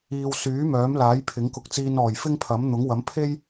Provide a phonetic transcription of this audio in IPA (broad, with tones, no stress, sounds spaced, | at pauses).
iː˨ w s yː˨˥ m œː˨˥ m l aː˨˥ j pʰ ɪ˨˥ ŋ k ʊ˧ k̚ t͡s iː˧ n ɔː˨˩ j f ɪ˥ ŋ pʰ ɐ˨˥ m n̪ ʊ˨˥ ŋ w ɐ˨˥ m pʰ e˥ j